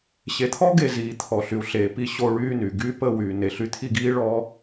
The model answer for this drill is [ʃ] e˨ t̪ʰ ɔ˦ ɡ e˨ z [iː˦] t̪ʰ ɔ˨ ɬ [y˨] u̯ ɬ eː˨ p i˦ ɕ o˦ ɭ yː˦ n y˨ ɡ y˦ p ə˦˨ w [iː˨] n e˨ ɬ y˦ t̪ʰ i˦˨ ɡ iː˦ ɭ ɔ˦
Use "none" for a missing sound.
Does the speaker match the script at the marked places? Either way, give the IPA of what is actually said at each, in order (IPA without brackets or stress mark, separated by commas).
ɕ, iː˨, y˨, yː˨